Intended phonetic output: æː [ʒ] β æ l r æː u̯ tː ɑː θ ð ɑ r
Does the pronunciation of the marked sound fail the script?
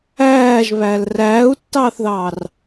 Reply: no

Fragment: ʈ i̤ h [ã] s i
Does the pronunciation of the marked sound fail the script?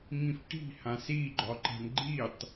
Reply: no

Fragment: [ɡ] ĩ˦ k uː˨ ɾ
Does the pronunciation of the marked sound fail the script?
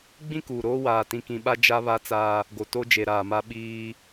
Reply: yes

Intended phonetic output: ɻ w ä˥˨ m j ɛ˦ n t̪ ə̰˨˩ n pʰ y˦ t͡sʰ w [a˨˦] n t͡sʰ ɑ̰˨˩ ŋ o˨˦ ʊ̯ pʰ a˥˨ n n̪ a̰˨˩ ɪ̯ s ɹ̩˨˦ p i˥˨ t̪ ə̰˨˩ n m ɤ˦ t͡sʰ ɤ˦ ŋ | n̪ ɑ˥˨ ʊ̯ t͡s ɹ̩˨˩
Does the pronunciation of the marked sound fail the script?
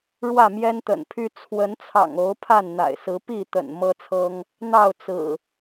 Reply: yes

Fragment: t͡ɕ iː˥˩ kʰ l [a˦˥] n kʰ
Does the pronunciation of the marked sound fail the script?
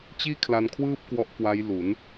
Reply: yes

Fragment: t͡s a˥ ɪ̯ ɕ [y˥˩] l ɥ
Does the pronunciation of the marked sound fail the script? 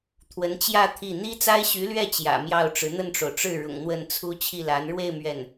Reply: yes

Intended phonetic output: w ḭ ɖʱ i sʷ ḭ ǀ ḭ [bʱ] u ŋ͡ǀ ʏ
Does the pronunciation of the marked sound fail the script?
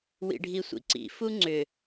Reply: yes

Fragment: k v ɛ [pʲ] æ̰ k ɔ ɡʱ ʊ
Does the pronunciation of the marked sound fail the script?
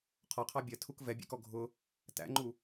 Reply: yes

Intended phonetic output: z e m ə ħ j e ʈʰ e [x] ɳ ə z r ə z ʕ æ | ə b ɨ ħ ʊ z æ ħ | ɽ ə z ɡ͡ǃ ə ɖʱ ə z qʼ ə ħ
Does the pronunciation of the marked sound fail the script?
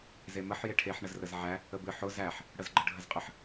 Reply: yes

